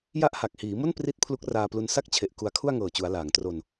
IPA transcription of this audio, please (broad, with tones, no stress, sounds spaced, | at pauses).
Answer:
j a˦˥ ʔ h a˨˩ k̚ h iː˩˦ m o˥˩ n p r i˦˥ t̚ pʰ l u˦˥ k̚ r aː˧ p l u˧ n s a˥˩ k̚ t͡ɕʰ e˨˩ ʔ k u˧ a̯ kʰ u˥˩ a̯ ŋ ɤː˨˩ t͡ɕ u˩˦ a̯ l aː˩˦ ŋ t r o˧ n